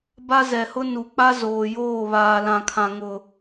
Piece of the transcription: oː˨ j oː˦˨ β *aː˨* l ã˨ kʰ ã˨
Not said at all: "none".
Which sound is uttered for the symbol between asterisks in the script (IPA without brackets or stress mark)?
aː˨